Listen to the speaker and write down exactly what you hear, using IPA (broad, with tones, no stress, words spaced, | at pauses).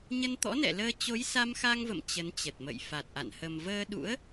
ɲə˧nt̪ɔ̰˧˥nɛ̰˧˨ləː˧ t͡ɕo˨˦jsa˧mxa˧ŋvə̰˧˨m t͡ɕə˨˦nt͡ɕə˨˩t̚mə̰˧˨j fa˨˩t̚ʔa̰˧˨n hə˨˩mvəː˧ɗṵ˧˥ə̯